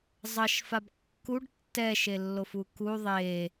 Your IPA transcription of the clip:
zˤʌʃfab kːuɖ tːɛʃelːofu ku ðˤe

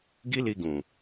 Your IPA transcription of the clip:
ɡi˦li˧ɡũ˨

